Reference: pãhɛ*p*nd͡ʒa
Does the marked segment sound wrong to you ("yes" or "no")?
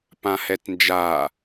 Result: yes